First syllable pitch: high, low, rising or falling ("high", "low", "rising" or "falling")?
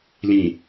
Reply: low